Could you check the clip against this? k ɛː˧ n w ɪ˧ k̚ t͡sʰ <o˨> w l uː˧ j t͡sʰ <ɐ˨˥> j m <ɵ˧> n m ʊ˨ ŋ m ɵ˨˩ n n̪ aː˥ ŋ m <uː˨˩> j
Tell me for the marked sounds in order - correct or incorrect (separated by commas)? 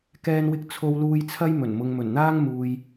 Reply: incorrect, incorrect, incorrect, incorrect